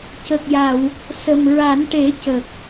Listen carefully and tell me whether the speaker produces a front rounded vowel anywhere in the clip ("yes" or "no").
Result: no